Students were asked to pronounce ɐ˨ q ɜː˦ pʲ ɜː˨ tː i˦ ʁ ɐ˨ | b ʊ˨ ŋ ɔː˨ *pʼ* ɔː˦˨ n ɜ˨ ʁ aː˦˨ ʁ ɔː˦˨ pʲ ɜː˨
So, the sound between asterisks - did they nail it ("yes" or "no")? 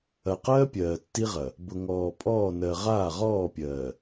yes